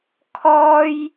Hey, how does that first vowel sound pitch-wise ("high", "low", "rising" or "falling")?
high